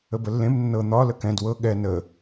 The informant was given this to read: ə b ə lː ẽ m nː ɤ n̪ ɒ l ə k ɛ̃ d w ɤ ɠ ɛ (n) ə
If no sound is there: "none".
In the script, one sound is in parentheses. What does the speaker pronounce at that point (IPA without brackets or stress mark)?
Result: n